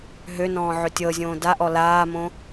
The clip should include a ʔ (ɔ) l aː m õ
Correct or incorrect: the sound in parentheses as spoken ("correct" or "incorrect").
correct